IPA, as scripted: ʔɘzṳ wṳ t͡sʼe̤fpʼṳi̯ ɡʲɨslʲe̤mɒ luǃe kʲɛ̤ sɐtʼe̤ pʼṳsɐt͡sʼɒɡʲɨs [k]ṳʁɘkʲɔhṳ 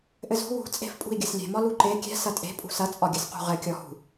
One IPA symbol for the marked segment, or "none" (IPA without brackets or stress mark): q